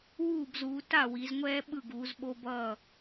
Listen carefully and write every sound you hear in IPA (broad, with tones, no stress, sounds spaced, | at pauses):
w uː˥˩ b z uː˩˧ t a˥˩ w i˩˧ z ŋʷ ɛː˦ ɓ ɯ˥˩ ɡ uː˩˧ z ɓ o˦ b ʌː˥˩